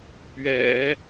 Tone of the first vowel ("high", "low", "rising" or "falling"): low